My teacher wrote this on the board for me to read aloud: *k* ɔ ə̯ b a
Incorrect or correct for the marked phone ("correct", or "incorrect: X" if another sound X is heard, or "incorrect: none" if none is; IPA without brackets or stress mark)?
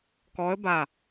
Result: correct